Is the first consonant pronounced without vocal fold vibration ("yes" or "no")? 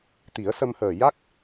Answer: yes